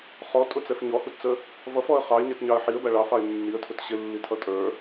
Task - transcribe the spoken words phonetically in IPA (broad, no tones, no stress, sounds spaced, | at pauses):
χ ɔ tʼ ʊ t͡s ɛ f ɲ ɔ h u t t͡s ə | v ʌ f ɔ ə̯ χ ɑ ɪ̯ ɲ ɛ t ɲ ɑ ə̯ ħ i ə̯ b æ ɭ ɑ f ɑ ɪ̯ nː i ə̯ tʰ ʊ t ɕ ɪ lː i tʰ ʌ tʼ ə˞